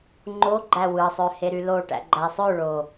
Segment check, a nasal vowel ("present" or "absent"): absent